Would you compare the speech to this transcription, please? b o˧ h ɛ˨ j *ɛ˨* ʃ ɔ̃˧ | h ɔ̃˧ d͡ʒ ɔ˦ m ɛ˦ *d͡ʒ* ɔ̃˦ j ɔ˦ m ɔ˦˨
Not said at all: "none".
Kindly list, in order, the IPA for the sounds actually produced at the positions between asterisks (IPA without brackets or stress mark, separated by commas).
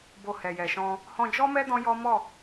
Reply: ɛ˨, d